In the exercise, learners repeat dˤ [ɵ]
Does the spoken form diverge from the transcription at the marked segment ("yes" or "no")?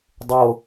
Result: yes